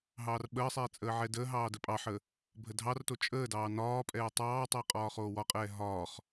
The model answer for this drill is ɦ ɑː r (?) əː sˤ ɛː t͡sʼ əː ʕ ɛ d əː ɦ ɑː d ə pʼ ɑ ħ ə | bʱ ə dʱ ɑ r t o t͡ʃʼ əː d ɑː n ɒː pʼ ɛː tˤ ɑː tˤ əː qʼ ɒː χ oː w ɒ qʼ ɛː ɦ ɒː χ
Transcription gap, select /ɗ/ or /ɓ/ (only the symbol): ɓ